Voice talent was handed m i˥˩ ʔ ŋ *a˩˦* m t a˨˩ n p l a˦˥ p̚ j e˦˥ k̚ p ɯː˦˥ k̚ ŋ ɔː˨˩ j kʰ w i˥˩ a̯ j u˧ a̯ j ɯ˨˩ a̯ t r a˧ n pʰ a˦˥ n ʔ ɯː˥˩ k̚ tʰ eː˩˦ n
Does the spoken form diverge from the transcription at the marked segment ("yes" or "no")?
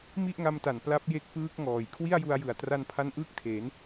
yes